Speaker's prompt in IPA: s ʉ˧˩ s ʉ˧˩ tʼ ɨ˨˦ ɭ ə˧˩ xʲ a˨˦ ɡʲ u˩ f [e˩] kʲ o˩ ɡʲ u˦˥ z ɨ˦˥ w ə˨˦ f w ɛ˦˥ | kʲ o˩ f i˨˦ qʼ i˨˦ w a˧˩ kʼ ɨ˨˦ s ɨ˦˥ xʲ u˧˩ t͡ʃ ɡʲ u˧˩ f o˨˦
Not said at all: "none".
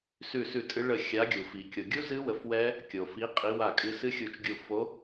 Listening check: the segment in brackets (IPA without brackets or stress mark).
i˩